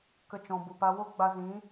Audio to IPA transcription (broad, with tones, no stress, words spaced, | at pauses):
kə˧ t͡ʃɔ̃˨ bu˨pa˧ wo˦ɡ͡ba˧zĩ˨˦